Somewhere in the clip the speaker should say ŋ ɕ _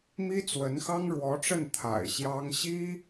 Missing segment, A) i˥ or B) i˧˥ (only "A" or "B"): A